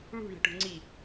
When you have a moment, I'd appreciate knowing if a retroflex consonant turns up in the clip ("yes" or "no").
yes